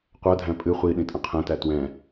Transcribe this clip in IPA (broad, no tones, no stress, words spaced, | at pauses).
qʷɜdʱæ̃ pʼɨ χʷiɗĩ tʼə̃qʰɛ̃tæ twɛ̃